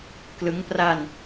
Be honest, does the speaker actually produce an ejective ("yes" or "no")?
no